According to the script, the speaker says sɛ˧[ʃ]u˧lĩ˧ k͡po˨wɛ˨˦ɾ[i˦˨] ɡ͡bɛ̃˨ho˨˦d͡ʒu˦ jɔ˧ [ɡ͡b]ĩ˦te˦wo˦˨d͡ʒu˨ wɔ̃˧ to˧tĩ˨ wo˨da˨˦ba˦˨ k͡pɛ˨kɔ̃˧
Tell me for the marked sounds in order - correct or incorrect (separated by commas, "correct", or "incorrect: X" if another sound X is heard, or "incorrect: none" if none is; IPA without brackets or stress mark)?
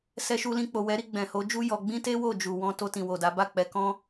correct, incorrect: i˧, correct